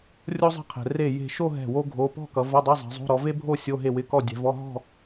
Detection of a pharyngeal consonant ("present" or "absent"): absent